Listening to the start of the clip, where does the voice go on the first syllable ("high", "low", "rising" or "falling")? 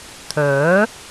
rising